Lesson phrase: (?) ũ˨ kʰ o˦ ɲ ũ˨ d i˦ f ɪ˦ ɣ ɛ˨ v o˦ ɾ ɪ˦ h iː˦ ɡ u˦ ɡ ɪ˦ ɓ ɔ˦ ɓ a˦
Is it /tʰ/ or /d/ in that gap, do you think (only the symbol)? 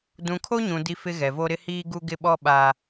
d